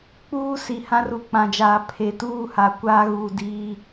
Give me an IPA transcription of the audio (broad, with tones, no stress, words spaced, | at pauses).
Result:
k͡puː˦si˨ hã˦ru˨k͡pã˨d͡ʒaː˨ pʰe˨tuː˦˨ha˨ kʷaː˦ɣuː˨diː˦